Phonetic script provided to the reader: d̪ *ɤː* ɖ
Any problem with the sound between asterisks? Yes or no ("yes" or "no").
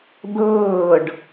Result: no